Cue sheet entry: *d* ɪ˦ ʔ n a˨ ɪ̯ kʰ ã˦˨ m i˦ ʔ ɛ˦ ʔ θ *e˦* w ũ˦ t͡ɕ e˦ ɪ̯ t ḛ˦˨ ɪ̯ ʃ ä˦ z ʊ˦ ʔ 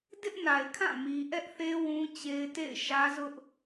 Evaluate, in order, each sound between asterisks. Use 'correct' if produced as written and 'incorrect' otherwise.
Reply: correct, correct

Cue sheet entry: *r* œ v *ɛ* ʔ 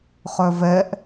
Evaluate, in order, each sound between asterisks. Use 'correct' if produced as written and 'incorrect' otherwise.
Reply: incorrect: χ, correct

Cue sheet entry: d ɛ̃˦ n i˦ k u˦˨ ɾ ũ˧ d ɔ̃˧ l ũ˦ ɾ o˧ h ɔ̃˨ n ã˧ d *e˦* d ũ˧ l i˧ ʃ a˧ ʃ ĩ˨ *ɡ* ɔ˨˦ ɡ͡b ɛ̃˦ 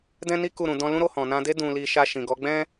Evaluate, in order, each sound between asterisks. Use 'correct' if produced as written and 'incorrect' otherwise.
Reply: correct, correct

